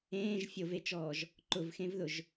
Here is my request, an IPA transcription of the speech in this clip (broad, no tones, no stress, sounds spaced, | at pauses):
ẽː ʒ fʲ o v e t͡ʃ ɔː ʒ | ǃ ʊ v x ẽ v ð ʊ ʒ